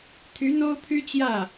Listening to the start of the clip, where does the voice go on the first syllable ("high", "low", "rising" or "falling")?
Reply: rising